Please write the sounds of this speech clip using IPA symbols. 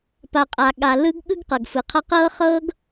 p a˨ qʼ a˨ ɠ a˨ l ɯ˦ ɡ ɠ ɯ˦ ɡ q ɤ˨ ɡ f ɯ˨ qʰ a˦ q ɤː˦ χ ɤː˦ ɡ

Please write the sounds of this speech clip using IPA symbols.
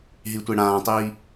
ɦ i tʷ e ɽ ãː tˤ iː

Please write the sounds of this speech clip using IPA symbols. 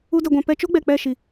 u˦ d ɛ˧ ɡʷ ã˧ p ɛ˧ t͡ʃ o˦ ɡ͡b ɛ˨ k͡p ɛ˦˨ ʃ i˨

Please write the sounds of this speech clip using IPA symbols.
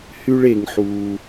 h y˦ ɭ e˧ ŋ ħ uː˧

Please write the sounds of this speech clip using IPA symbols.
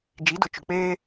d͡ʒ i˨˦ d ʊ˨ t͡ʃ ʊ˨ k͡p eː˦

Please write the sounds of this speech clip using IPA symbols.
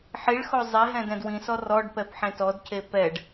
ħ i ɭ x o zˤ e ɦ ɛ̃ d ɛ̃ d w ĩ s ɔ r ɔ ɖ p ɛ p ħ ẽ t ɔ d c e p ɛ ɖ

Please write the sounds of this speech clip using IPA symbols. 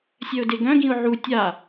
sʲ œ ʊ̯ d e ɡ œ̃ ɡ ĩ ʊ̯ ʕ u tʲ a

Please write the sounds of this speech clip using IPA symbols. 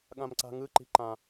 ɠ ã m ǀ a̤ ŋ ɯ ǃ i̤ ǃ ã

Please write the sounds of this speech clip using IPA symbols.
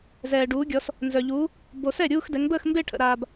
z ɛː˨ ɖ uː˨˦ ɡʲ ɔ˨˦ s | n z œ˨ ʎ uː˨˦ | b o˨ s ɛ˥˩ ɾʲ uː˥˧ x d ɛ˨˦ ŋ b əː˥˧ x m b e˥˧ ʈʰ ə̰˨ ɾ aː˨ b

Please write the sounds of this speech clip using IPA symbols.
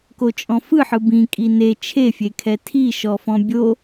k o t͡ʃʼ ɔ̃ f ɯ ħ ɯ b ĩ kʼ i n e t͡ʃʰ e fʲ e kʰ ɛ tʰ i ʃ ɔ f ɔ̃ bʲ o

